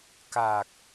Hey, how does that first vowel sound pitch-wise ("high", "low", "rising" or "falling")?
low